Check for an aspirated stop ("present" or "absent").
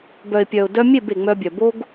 absent